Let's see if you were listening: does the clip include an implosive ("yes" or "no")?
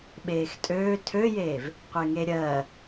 yes